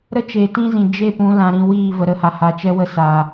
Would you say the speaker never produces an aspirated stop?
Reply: yes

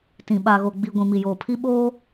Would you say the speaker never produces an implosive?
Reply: no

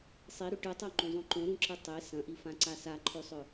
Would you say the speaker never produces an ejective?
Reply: yes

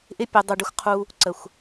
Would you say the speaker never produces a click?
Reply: no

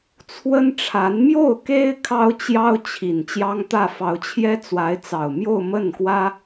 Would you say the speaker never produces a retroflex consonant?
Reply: no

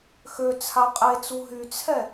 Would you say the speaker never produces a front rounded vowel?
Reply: no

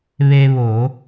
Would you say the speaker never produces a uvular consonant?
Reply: yes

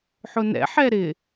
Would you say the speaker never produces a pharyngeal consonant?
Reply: no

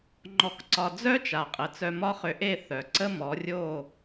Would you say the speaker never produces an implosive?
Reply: yes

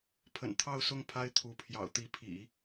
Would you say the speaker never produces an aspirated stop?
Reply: no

